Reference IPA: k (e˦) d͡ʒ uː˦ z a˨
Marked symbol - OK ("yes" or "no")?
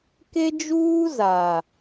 yes